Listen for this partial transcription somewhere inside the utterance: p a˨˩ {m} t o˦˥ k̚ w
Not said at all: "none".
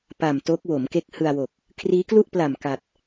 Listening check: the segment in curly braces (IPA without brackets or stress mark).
m